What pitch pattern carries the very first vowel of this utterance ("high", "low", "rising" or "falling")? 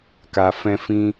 low